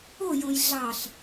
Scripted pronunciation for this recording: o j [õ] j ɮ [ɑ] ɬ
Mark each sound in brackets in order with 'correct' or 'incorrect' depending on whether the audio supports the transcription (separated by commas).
correct, correct